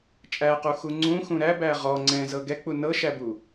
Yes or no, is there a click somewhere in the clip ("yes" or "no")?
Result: yes